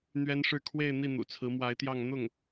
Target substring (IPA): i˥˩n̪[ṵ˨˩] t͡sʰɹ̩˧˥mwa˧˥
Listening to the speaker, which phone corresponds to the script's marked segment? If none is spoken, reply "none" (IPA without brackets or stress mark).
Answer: ṵ˨˩